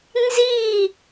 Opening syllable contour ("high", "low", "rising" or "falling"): falling